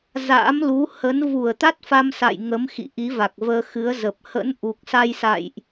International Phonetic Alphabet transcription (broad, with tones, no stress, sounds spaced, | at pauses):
z a̰˧˥ m l u˨˦ h ə˨˦ n v u˧˩ ə̯ t̪ a˦˥ t̚ f a˧ m s a̰˧˨ j ŋ ə˨˦ m x ḭ˧˨ ʔ i˨˦ v a˨˩ k̚ v əː˧ x ɨ˨˦ ə̯ z ə˨˩ p̚ h ə̰˧˥ n ʔ u˨˩ k̚ s a˧ j s a̰˧˨ j ʔ